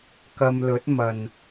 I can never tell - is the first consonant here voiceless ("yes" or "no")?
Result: yes